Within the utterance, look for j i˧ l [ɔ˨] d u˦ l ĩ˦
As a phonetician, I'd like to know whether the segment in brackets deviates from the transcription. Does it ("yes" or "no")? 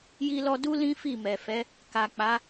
yes